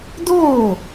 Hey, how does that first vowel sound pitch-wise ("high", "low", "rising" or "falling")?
falling